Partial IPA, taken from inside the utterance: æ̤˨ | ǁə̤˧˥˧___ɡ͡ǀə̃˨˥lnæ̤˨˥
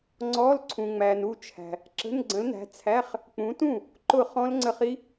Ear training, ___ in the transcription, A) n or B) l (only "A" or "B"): A